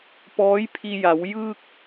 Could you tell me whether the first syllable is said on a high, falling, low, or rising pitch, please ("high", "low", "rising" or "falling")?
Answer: rising